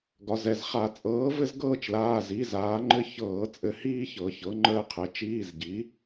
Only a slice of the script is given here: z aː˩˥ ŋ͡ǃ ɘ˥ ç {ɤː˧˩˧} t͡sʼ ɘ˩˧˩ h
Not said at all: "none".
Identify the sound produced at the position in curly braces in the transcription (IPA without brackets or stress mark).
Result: ɤː˧˩˧